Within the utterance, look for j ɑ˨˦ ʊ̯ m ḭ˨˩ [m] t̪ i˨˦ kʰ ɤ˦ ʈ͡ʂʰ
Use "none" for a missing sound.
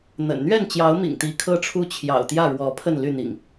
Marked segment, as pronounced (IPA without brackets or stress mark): ŋ